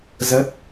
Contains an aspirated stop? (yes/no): no